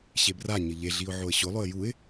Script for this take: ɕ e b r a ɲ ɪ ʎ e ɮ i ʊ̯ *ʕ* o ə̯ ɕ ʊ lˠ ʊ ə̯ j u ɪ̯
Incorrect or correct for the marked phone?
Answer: correct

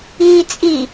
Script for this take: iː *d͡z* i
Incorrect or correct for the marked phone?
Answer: incorrect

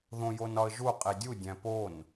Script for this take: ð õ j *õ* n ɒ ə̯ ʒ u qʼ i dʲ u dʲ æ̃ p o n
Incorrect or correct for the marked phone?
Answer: incorrect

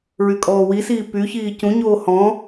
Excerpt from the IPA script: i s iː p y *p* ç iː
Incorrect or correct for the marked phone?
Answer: incorrect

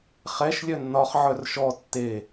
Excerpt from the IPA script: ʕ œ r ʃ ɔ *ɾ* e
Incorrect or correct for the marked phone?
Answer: incorrect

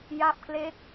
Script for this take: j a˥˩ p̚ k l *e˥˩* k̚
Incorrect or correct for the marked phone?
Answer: correct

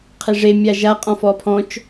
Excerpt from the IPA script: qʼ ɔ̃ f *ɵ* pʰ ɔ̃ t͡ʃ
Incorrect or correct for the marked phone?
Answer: incorrect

